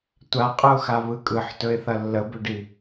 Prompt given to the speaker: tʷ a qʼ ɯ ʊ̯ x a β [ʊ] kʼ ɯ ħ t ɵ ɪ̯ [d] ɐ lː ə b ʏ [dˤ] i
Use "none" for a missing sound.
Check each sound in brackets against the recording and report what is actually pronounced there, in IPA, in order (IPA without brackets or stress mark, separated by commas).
ɯ, θ, ɖ